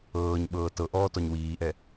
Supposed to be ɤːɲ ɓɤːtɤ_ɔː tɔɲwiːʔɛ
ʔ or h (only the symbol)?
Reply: ʔ